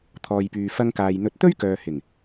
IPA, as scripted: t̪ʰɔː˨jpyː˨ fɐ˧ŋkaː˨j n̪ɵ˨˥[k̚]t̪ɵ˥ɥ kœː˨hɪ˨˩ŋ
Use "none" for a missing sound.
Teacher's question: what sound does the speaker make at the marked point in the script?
t̚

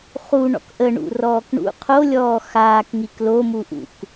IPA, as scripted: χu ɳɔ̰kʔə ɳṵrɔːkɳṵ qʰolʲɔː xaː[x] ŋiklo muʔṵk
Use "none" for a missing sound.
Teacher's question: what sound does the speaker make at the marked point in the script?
k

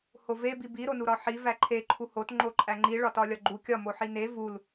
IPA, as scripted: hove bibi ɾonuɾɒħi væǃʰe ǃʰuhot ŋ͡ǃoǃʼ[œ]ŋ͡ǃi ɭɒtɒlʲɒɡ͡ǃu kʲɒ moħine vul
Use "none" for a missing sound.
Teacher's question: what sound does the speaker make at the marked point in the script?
æ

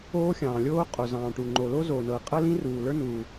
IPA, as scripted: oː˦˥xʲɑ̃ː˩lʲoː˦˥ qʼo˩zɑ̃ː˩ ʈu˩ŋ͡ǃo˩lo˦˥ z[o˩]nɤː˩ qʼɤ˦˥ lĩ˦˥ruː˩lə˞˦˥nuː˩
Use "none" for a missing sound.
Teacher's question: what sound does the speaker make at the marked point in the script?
oː˩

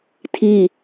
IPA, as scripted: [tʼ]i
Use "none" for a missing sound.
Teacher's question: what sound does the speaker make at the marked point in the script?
tʰ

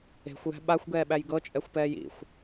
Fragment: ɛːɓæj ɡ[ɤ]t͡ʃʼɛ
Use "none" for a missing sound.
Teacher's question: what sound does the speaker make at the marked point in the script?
ɤ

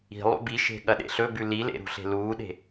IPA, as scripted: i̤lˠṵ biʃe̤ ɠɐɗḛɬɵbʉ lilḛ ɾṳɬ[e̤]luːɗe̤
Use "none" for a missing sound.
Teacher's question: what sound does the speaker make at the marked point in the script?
e̤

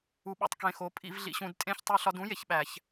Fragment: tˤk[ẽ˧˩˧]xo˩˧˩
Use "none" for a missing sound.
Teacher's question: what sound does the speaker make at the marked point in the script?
ẽ˩˧˩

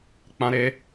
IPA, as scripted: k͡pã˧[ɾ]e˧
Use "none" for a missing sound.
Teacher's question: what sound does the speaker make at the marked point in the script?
ɾ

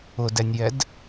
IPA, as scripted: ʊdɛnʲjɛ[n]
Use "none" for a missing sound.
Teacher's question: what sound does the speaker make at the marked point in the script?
d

